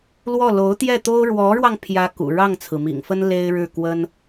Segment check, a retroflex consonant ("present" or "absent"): present